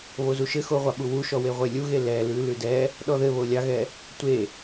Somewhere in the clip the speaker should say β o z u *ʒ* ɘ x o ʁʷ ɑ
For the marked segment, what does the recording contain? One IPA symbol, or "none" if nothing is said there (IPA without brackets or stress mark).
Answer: ʃ